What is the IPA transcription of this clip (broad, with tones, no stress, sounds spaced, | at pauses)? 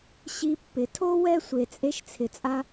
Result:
ɕ i˧ pː ɪ˨˦ tʰ o˦ w ɛ˦ sʷ e˧ t͡sʼ e˦ ʃ t͡sʰ ɪ˧ t͡sʼ a˦